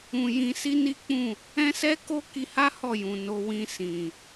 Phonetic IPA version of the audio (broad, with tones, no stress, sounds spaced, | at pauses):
ũ˧ j ĩ˧ s i˦ n i˦ k͡p ũ˦˨ | ɛ̃˦ s ɛ˦ k o˦ k i˧ h a˦ h ɔ˦˨ j ũ˨ n o˨ w ĩ˧ s ĩ˨